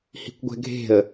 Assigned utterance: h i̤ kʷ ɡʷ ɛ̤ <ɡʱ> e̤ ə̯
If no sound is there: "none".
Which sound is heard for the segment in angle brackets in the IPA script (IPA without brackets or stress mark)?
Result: ɡʱ